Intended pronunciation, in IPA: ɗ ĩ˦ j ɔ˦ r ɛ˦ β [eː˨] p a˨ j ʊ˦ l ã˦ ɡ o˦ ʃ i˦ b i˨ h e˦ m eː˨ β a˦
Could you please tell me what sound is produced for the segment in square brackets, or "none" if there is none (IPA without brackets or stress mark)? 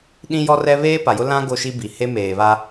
eː˦